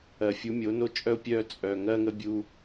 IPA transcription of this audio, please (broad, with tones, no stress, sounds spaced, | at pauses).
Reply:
ɜ˨ fʲ u˨˦ mʲ o˨˦ n o˦ t͡ʃʼ œ˦ ʊ̯ pʲ œː˦ t͡sʼ œ˨ ŋ ɜ˦ ŋ ə˦ bʲ u˦